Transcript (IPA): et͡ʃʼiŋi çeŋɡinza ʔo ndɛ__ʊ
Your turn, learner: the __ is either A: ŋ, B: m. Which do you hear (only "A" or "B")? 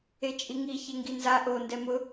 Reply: B